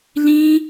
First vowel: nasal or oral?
nasal